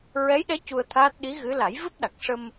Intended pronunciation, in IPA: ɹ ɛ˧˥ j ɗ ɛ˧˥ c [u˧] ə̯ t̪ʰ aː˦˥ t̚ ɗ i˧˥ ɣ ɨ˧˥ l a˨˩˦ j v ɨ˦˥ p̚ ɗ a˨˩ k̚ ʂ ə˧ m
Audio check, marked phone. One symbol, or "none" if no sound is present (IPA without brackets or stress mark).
u˧